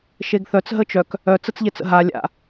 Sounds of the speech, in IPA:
ʃ e ɡ θ œ t͡s ɦ ə t͡ʃ œ k | œ t͡s ə t͡s ʎ e t͡s ə̰ ɦ a lʲ a̰

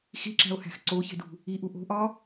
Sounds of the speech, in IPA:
x i ǁ æ̤ o̯ h æ̤ x ǀ o ç e̤ d ṳ | i ʔ u ʔ o̤ ʔ ɒ

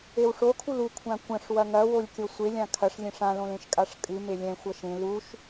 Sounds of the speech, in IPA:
e w ʂ o kʰ u l u kʷʰ ã kʷ ɐ̃ ʂ w ɐ ŋ ɐ w o lʲ kʲ o sʷ e lʲ ã kʰ ɐ ʂ lʲ ẽ ʂ ã l õ l ẽ ʃ kʼ a ʂ kʼ ɨ m e lʲ ɛ̃ xʷ ɐ ʃ ẽ l u ʃ

